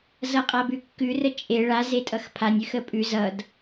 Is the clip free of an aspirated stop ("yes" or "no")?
no